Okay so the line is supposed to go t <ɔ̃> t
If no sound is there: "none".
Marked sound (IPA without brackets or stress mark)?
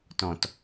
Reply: ɔ̃